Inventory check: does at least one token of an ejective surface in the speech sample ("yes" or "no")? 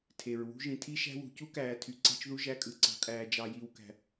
yes